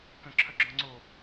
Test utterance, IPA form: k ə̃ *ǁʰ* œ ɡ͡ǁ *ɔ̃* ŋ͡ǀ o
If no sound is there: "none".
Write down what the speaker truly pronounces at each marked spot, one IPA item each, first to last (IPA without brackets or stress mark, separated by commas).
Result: ǁʰ, ɔ̃